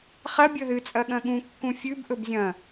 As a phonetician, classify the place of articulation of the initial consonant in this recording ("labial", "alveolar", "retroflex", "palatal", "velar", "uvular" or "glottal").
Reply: uvular